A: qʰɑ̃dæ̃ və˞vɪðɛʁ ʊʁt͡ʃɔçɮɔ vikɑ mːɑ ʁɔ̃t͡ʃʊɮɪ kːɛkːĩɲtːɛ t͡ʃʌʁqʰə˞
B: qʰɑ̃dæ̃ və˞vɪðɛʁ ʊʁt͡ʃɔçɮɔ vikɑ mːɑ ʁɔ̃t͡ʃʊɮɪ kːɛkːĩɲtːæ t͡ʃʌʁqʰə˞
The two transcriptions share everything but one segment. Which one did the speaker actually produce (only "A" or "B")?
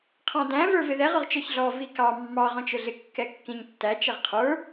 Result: B